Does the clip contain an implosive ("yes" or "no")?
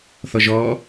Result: no